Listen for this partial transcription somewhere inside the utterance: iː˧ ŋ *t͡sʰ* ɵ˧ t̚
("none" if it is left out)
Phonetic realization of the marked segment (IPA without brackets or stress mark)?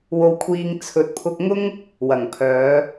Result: t͡sʰ